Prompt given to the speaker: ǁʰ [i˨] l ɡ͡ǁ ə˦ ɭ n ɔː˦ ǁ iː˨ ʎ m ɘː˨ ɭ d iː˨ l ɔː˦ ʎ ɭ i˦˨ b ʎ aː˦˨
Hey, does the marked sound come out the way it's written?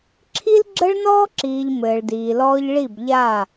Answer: no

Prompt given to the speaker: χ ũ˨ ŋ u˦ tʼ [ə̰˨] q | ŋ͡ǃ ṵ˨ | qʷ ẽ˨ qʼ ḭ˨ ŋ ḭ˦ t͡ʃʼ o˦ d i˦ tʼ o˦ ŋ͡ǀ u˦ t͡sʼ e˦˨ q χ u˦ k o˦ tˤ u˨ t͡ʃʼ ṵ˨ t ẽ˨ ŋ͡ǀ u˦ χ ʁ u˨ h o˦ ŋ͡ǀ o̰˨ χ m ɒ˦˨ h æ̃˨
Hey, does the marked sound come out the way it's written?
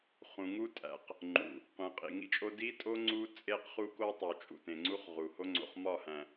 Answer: no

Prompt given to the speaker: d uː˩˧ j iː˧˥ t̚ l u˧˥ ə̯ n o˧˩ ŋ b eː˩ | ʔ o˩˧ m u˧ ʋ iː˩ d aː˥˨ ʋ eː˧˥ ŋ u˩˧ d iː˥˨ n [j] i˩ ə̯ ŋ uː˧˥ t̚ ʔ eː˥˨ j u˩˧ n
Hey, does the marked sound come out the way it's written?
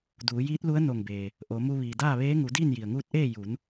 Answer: yes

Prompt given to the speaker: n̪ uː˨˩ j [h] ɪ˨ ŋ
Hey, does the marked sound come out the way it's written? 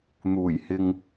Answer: yes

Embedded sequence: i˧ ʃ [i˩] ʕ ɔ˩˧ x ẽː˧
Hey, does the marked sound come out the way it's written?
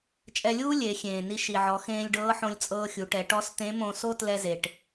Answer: yes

